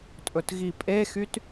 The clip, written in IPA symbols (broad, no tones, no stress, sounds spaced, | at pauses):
tʼ ɵ t ɣ i pʼ e x y t